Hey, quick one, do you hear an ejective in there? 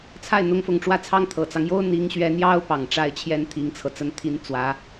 no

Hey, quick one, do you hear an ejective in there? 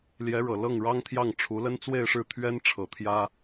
no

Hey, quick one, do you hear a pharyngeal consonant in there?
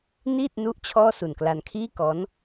no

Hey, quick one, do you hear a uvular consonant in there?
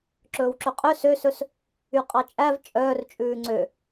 yes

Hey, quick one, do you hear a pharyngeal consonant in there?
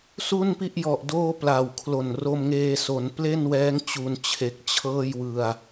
no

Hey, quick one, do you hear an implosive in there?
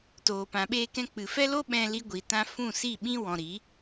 yes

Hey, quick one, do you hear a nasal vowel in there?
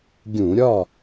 yes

